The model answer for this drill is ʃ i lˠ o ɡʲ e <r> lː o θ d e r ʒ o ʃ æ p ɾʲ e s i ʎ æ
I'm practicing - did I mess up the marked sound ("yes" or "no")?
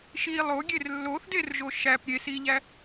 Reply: no